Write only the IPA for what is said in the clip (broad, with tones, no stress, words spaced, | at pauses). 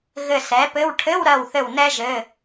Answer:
ɣɘ˧˩sɛ˩˥pɘ˧˥˧w ʈʰɘ˧˥˧w ɾɜ˧˩wθɘ˧˩w nɛ˥ʒɘ˧˥˧